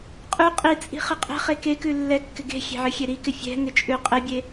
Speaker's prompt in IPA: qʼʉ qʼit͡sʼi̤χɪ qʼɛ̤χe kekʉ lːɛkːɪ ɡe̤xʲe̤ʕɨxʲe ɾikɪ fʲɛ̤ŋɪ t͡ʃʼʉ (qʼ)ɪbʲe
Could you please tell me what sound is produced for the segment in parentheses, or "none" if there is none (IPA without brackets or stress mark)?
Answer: qʼ